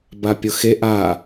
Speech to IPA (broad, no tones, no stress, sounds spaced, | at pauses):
b a pʲ ʊ x e ʔ a